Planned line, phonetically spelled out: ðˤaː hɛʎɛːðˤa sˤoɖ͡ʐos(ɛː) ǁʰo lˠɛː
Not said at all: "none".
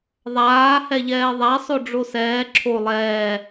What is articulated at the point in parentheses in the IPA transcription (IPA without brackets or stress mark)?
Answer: ɛː